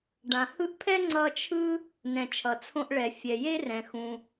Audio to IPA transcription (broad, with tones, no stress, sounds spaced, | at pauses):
ɖ ã˩ h ɯ˥ ʔ pʰ ɛ˥ ŋ͡ǀ ʌ˧ t͡ʃʰ ɯ˥ | n ɛ̃˩ t͡ʃʰ ʌ˩ t͡sʰ õ˧ ʔ ɭ ɛ˩ fʲ ɛ˩ j e˥ r ɛ̃˩ x ũ˩